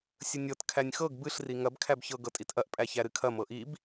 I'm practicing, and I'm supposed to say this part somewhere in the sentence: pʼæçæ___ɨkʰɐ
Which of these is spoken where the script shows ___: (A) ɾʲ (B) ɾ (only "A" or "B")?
B